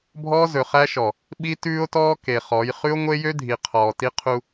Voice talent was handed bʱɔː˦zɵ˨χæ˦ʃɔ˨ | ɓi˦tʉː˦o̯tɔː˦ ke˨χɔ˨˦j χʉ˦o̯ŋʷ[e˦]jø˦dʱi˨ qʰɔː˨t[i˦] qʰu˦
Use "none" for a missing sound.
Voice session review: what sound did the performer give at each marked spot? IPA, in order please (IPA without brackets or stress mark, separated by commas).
e˦, i˦